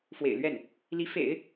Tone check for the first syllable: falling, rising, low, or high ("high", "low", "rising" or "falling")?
low